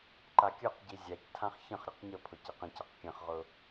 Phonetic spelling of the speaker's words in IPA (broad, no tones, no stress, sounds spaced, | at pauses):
ǃ a kʲ ʊ q ɟ i zʲ a c tʰ ã χ ç ə̃ χ ɾʲ ə q ɲ ə pʰ ʊ c e q ə̃ c a q kʲ ə̃ χ ʁ ʊ